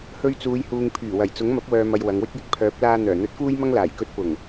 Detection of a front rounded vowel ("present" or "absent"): present